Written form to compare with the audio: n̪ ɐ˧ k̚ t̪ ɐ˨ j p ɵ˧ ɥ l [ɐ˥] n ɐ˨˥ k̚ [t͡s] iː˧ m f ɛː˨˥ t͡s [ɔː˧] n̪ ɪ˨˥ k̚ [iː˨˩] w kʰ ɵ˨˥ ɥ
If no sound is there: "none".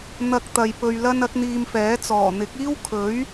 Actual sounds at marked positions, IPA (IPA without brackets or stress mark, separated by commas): ɐ˥, n̪, ɔː˨˩, iː˥